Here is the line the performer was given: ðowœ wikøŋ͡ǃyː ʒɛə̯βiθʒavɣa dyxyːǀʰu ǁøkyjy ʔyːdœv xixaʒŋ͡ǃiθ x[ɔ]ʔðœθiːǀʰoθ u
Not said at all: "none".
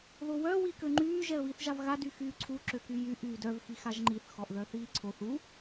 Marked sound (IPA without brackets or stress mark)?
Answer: ɔ